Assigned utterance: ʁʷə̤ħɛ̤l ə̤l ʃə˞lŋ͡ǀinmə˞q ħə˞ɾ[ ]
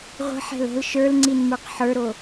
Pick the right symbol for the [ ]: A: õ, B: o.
B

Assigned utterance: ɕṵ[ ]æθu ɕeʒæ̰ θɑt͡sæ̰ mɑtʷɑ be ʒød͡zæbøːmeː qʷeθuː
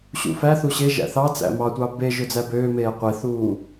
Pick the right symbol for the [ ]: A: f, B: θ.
A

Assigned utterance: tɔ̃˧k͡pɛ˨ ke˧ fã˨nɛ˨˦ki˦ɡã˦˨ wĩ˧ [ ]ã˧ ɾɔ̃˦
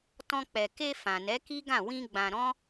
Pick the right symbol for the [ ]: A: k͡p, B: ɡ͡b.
B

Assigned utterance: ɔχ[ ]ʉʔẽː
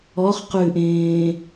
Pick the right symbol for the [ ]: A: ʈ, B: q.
B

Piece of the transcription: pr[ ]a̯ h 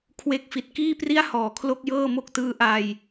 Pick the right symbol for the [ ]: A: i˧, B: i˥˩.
B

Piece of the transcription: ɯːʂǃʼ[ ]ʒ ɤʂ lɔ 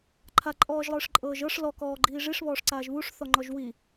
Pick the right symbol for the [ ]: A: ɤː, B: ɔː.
A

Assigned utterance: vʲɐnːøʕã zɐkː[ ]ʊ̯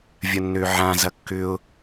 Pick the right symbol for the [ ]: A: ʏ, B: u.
A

